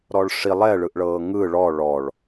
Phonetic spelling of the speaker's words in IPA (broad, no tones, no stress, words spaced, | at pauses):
ɾɔɭʂi lˠɛ ɭɯʔɭɤːŋɯ ɭɔ ɭɔɭ